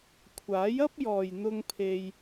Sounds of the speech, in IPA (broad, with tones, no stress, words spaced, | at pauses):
kʷʰaː˨˥jɐ˥p̚jɔː˨jn̪ʊ˧ŋ pʰe˧j